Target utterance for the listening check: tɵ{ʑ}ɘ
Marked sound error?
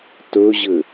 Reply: no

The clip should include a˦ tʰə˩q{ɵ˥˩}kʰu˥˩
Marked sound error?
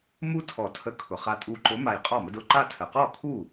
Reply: yes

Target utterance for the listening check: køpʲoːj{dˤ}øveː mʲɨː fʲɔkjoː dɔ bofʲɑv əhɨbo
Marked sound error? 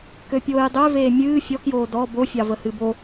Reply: no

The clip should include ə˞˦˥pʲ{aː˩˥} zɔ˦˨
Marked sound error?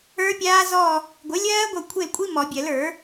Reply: yes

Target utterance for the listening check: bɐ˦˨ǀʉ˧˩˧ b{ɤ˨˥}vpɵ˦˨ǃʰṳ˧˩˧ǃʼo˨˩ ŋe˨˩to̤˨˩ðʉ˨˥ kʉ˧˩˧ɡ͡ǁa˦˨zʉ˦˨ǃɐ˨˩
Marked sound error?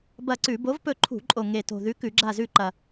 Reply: yes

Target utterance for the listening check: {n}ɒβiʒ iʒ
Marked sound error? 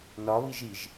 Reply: no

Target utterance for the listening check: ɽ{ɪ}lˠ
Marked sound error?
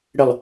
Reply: no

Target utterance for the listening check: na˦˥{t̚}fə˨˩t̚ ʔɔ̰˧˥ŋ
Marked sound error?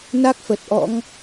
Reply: yes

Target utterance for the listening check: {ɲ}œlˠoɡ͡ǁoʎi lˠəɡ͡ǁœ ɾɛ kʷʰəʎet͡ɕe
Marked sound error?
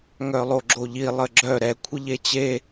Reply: yes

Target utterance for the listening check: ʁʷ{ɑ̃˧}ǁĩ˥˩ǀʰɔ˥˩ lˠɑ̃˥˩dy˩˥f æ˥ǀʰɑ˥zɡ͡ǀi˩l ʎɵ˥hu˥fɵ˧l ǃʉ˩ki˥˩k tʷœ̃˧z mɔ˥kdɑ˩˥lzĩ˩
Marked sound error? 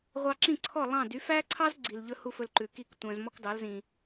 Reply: yes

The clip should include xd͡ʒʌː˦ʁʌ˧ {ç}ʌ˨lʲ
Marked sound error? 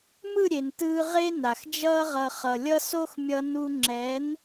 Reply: yes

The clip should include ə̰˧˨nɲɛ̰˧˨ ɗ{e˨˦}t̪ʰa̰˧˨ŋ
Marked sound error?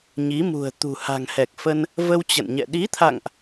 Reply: yes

